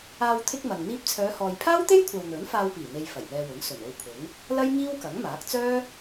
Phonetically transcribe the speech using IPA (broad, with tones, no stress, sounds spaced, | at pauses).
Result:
aː˧ w t̪ʰ ɪ˥ k̚ m ɐ˨ ŋ n̪ iː˧ p̚ t͡sʰ œː˨˧ h ɔː˨ j pʰ aː˥ w t̪ e˥ j kʷʰ ɐ˨ w n̪ ɵ˨˥ n f aː˧ w p iː˨˩ n̪ e˧ j f ɐ˨˩ j n̪ ɛː˧ w ʊ˨˥ ŋ s ɵ˨˩ n o˧ w pʰ ʊ˨˥ ŋ | l ɐ˥ j ŋ iː˥ w k ɐ˨˥ ŋ m aː˨˥ k̚ t͡s œː˥